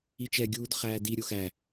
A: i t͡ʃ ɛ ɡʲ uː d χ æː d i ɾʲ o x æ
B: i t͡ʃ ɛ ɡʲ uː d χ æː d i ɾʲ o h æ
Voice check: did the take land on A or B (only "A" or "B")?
A